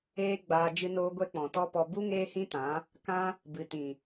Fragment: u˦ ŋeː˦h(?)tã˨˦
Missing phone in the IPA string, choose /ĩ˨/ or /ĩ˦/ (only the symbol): ĩ˦